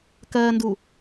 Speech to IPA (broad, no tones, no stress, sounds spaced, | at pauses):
k ɜː n d u